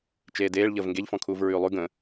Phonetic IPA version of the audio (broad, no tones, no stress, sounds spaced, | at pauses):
t͡ʃ eː d eː ɭ ʎ əː v ŋ ɡ e ʎ f ɔ̃ kʰ uː v ɹ ʉː lˠ ʉ ɡ ə̃